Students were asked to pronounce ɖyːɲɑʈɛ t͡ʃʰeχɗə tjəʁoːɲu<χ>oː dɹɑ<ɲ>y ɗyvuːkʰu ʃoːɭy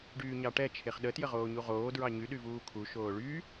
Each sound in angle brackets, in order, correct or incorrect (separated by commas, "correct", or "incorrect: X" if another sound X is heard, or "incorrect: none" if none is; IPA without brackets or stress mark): incorrect: ʁ, correct